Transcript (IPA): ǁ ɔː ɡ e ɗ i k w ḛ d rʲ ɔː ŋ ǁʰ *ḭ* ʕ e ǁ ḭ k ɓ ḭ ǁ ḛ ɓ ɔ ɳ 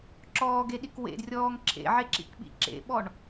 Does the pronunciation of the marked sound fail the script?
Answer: yes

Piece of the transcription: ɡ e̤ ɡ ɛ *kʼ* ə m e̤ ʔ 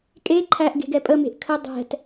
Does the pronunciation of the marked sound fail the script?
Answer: yes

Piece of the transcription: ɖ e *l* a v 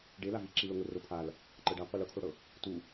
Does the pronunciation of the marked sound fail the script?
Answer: no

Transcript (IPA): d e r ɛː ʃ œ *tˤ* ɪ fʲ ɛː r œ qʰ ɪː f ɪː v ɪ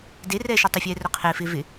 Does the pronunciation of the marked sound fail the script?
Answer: no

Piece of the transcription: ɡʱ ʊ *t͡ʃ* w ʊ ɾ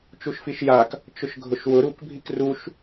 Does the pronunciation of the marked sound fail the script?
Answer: yes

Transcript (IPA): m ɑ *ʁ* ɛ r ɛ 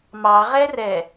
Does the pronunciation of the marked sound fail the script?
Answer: no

